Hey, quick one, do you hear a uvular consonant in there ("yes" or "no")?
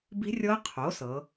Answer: yes